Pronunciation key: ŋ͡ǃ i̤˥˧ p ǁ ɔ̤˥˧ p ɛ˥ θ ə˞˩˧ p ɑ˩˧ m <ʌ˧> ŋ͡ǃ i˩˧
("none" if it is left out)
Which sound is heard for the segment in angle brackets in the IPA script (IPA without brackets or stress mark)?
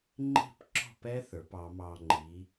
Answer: ɑ˧